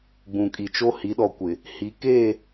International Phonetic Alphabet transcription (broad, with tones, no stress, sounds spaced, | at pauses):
ɡ͡b ũ˨ kʼ i˨ t͡ʃ o˦ h i˨˦ ɗ ɔ˨ kʷ ɪ˨ | h i˨˦ k eː˦˨